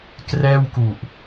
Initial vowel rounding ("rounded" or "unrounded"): unrounded